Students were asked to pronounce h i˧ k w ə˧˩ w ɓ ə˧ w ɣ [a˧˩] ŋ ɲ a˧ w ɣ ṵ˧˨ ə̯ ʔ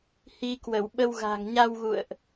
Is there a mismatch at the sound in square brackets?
yes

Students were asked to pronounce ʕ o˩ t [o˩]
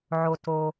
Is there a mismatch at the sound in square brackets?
no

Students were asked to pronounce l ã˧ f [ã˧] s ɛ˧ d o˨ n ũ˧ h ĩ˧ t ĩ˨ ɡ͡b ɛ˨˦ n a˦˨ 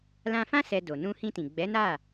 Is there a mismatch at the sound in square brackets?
yes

